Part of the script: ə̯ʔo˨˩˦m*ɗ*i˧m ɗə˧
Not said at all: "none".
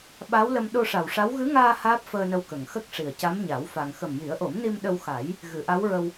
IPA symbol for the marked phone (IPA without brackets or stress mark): n